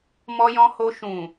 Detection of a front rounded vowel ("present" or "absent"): absent